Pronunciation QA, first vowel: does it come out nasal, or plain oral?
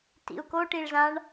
oral